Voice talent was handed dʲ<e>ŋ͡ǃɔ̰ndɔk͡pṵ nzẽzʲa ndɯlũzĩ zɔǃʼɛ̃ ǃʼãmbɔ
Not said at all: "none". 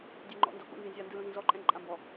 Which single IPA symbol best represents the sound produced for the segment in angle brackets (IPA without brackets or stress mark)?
e